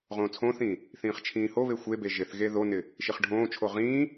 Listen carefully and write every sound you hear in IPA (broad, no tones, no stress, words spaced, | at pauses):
ʁõːt͡sʰõːθĩː | θĩːχt͡ʃʰĩːhoβe xʷebe ʒɪθɣe ðonɪ | ʃiχɖʱõːt͡ʃʰo ʁĩː